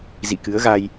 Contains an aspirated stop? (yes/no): no